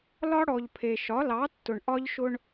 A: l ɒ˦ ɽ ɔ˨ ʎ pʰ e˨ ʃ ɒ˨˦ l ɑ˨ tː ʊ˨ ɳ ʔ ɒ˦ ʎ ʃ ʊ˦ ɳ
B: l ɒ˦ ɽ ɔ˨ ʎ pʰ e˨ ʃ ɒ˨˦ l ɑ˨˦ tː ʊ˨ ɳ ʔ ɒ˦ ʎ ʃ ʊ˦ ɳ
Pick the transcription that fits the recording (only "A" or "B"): B